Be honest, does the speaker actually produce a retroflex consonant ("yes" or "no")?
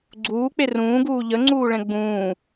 yes